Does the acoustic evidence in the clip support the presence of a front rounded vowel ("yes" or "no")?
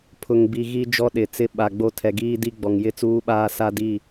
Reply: no